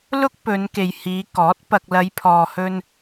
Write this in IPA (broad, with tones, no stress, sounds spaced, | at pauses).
l ʊ˥ k̚ p ɵ˨˧ n k e˨ j h iː˨˧ k ɔː˨˥ t̚ p ɐ˨ k̚ l ɐ˨˧ j pʰ ɔː˨ h ɵ˧ n